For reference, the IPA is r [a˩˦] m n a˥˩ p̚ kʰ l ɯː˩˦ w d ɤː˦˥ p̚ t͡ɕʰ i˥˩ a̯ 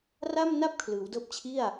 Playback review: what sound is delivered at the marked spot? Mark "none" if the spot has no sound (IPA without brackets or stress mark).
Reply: a˥˩